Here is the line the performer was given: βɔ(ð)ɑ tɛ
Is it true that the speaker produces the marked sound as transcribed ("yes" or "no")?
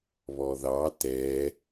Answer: yes